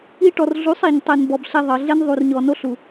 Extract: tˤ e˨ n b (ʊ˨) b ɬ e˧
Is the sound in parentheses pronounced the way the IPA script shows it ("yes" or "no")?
no